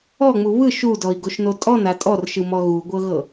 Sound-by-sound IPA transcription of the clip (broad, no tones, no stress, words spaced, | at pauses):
ɔŋ͡mu βɯʃ udɔi̯ɡoʃno tʼɔna tʼɔrʃɯmɔ ɣuɡʷɤɣɤ